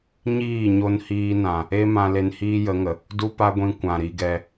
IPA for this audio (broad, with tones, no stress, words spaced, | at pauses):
ɲiː˦˨ɲo˧nhiː˧nã˨ | e˦mã˧ le˧nhiː˦jə˨˦ŋə˨ | du˦pa˦ɡʷĩ˧ kʷã˨ɾi˧ɡɛ˧